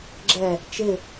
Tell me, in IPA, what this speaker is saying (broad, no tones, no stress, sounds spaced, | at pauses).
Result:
ɡ͡ǁ ɛ | t͡ʃ ɪ